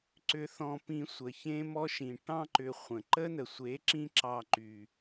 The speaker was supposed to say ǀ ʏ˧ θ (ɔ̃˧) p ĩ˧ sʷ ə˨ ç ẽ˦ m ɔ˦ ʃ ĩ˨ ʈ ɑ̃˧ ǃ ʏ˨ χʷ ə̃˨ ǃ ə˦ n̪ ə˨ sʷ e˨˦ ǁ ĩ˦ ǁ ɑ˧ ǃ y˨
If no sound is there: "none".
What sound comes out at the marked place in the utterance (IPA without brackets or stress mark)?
ɔ̃˧